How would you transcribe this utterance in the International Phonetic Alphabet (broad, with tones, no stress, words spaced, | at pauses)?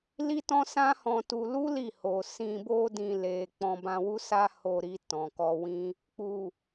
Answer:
li˦tɔ̃˦sã˦hɔ̃˧ tu˧ lu˦ li˦˨ho˨ sĩ˨bo˧dĩ˨ le˨ k͡pɔ̃˧bã˧wu˦sa˦ ho˧ɾi˧ tɔ̃˨kɔ˧wĩ˦ | k͡pu˨